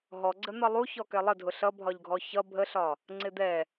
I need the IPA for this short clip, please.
ɦ ɔ ɡ͡ǀ ə n̪ ʌ lˠ u ç ɔ k ɛ lˠ ə dʱ ʊ ɬ ʌ bʱ ɒ ʎ ɡʱ ɔ ç ʌ bʱ ə ɬ ɒ | ŋ͡ǀ ɪ d̪ ɛ

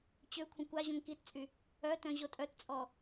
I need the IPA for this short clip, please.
t͡ɕ ø kʷʰ ə̃ kʷ a ʑ õ ŋ k i t t͡sʼ y | œ t œ̃ ʑ o tʼ œ t t͡sʼ ɔ

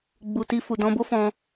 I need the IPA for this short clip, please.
ɡ͡b u˨ t i˧ f u˨ d ɔ̃˧ b o˦ f ɔ̃˧

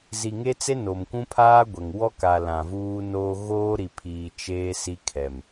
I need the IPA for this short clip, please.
z i˨ ŋ e˦ t͡s e˦ n o˨ m kʷ ũ˦ pʰ aː˦ ɡʷ ɛ˨ ŋ w ɔ˦ k a˨ l ã˨ v uː˦ n oː˦ ɣ oː˦ ɾ i˨ pʰ iː˨ t͡ʃ eː˦ s i˦ kʰ ɛ˨ m

